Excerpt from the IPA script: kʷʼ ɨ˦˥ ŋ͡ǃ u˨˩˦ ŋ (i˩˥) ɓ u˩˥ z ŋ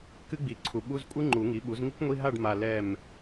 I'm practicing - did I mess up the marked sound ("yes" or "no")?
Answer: no